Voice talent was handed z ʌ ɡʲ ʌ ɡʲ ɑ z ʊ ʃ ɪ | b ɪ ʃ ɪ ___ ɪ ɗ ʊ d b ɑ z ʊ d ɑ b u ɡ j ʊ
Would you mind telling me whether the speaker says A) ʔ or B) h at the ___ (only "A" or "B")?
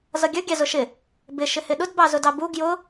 B